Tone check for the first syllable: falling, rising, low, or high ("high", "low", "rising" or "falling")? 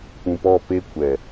low